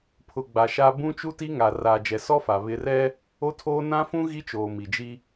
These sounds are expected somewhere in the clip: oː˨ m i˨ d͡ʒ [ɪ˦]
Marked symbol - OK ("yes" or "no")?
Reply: no